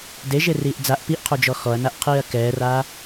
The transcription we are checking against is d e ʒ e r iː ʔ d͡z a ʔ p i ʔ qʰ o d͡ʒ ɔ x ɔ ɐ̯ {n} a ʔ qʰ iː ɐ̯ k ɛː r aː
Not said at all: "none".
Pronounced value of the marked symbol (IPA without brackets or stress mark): n